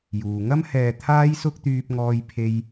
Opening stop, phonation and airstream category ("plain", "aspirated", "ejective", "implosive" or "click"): aspirated